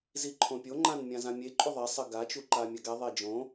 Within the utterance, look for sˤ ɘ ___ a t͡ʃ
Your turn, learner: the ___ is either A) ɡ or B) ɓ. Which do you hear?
A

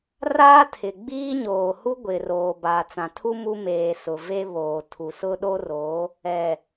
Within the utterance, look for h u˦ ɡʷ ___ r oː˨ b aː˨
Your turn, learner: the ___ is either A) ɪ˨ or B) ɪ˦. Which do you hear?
A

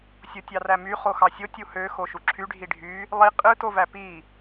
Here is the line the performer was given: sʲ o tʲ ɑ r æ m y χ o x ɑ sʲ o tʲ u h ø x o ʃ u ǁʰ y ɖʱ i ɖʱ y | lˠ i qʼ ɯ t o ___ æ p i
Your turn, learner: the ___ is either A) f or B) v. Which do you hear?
B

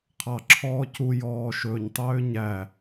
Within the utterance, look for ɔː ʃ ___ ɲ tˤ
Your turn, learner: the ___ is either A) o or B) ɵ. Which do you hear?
B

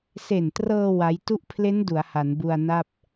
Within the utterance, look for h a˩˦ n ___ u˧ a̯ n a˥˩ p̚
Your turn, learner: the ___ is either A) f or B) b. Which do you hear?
B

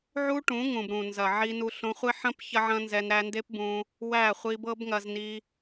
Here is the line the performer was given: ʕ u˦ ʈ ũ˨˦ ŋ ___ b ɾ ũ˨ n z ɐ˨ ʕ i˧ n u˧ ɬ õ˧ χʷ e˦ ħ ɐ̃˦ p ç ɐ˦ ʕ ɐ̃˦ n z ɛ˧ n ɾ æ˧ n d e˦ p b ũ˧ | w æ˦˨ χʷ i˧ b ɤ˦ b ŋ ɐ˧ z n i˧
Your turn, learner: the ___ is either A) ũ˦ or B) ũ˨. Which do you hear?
B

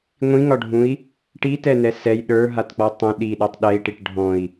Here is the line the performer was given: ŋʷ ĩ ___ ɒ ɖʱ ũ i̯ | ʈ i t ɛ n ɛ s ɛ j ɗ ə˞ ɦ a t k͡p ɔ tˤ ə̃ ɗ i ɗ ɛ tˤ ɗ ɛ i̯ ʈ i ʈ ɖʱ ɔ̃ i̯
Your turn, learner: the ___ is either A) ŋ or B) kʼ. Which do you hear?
A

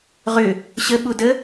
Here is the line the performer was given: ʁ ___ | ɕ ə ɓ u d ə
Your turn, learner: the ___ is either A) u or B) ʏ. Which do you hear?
B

